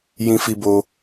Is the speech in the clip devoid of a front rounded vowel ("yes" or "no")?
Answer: yes